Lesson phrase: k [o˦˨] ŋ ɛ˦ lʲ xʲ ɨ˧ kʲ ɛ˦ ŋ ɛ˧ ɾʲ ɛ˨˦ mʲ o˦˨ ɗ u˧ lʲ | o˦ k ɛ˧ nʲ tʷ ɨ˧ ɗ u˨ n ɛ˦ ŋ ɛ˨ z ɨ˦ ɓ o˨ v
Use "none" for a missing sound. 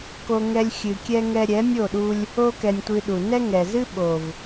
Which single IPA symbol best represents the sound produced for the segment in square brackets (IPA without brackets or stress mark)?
o˦